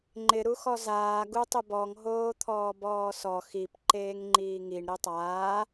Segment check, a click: present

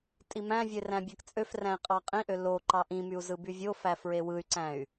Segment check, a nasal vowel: present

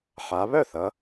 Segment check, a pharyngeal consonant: present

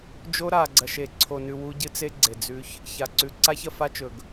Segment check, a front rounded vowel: absent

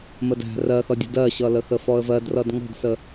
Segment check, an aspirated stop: absent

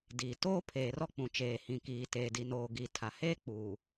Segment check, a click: absent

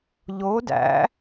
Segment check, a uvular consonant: absent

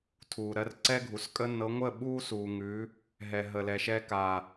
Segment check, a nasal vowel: absent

